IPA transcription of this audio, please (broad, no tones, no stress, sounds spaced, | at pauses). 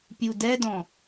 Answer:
pʲ u d ɛ d ɔ̃